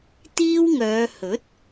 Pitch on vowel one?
high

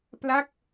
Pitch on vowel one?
falling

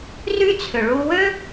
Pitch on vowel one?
high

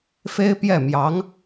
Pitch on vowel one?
high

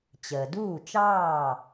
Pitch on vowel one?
low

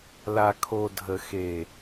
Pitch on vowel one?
low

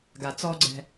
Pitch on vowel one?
low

